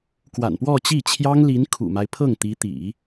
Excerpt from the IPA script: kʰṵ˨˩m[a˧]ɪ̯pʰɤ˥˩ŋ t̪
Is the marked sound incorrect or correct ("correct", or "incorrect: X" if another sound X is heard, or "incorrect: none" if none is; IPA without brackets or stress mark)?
incorrect: a˦